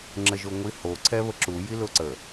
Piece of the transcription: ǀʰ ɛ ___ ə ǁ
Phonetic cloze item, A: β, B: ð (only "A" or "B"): A